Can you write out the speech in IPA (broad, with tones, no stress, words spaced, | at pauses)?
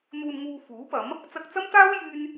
n̪uː˧nŋuː˧ fuː˨˥pɐ˨˥m | t͡sɐ˧k̚t͡sɐ˥mt̪aː˥w jyː˥n